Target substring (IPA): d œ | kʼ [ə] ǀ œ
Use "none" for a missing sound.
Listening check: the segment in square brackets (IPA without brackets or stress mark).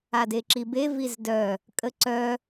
ə